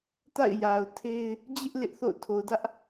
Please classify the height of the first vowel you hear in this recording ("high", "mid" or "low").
low